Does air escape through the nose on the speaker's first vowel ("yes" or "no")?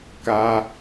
no